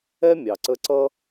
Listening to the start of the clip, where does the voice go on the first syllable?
high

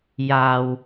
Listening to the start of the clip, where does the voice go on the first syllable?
low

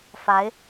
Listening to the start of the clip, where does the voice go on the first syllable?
rising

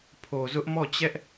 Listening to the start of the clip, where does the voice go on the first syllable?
low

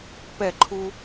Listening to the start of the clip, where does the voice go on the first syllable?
falling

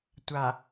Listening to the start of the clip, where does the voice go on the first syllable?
low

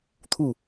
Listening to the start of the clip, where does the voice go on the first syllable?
falling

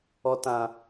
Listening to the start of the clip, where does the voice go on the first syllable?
low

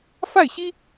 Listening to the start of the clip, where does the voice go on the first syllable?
falling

